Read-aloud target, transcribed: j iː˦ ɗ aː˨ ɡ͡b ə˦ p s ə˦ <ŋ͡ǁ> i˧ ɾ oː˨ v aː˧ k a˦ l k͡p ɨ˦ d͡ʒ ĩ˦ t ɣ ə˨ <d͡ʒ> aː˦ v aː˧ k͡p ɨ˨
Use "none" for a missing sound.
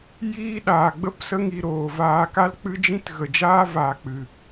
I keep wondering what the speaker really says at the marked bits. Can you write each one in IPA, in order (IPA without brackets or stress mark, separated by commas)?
ŋ, d͡ʒ